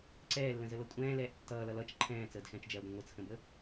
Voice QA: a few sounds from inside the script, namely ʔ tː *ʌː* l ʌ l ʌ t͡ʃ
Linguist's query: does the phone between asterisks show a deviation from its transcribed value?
no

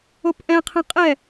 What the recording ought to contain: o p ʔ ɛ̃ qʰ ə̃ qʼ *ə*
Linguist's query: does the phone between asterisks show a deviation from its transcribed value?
yes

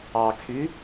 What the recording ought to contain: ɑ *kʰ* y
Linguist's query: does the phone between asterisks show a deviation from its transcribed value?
no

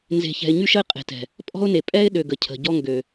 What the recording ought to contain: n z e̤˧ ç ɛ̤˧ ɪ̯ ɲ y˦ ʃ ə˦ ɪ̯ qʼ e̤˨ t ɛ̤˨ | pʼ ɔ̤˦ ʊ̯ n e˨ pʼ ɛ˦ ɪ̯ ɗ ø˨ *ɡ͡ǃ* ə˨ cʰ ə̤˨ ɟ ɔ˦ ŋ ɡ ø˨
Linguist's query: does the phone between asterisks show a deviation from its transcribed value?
yes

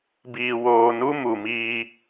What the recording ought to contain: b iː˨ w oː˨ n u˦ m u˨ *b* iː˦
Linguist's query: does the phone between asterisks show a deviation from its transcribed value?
yes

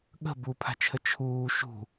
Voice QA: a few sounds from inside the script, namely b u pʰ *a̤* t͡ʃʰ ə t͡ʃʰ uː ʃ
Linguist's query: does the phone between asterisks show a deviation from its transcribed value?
no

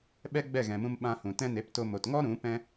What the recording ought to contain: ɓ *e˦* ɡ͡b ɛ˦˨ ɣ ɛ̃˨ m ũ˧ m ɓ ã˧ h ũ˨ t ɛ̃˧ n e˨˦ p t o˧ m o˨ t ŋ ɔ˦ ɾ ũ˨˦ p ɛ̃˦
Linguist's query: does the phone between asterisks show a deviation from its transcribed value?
yes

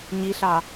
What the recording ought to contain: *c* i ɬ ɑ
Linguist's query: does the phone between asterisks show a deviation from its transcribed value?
yes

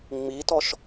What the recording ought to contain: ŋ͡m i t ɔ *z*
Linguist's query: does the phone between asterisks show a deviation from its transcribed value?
yes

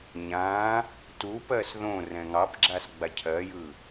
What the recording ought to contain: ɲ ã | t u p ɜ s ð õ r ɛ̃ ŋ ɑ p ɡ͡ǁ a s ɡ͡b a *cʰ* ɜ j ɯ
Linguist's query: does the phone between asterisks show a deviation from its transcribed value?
no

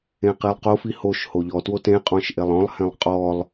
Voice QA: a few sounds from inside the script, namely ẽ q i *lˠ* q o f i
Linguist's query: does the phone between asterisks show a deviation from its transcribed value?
no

